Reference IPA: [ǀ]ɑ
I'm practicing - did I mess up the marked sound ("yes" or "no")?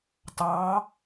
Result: yes